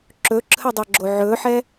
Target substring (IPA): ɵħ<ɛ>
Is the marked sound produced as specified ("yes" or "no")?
yes